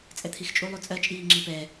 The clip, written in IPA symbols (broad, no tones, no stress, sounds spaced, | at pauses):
t͡sʼ ɛ t̪ʰ i x t͡ʃʼ u lˠ u t͡sʼ ɜ t͡ʃʼ iː ŋ͡ǁ i p ɛ